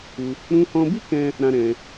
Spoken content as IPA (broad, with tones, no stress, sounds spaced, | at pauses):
u˧ | ɾ ũ˧ h ɔ̃˧ b i˦ k ɛ̃˦ | ɾ ã˧ ɾ ɛ̃˧